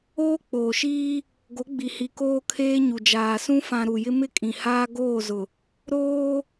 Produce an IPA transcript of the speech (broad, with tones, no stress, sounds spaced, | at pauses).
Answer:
oː˦ k͡p oː˨ ʃ iː˦ | ɡ o˨˦ ɡ͡b i˨ h i˨ k oː˦ kʰ eː˦ ɲ u˨ d͡ʒ aː˨ s ũ˦ f ã˨ ɾ u˨ j ɪ˦ m ɪ˦ kʼ ĩ˨ h aː˦ ɡ oː˦˨ z ʊ˨ | ɾ oː˦